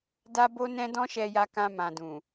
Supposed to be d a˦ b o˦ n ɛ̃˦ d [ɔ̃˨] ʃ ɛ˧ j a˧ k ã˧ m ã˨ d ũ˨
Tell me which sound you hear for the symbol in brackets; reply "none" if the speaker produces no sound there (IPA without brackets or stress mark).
ɔ̃˦